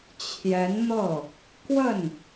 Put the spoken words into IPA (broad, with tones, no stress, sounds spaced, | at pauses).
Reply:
t͡ɕʰ j ɛ˧˥ n n̪ ɤ˥˩ | k w ə˥˩ n